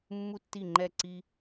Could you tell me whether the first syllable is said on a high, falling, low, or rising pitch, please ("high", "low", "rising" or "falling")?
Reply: high